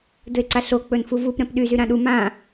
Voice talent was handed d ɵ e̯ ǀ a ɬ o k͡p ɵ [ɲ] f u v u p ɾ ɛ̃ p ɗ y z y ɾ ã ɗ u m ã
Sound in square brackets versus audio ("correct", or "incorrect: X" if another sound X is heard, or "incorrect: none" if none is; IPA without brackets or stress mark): incorrect: n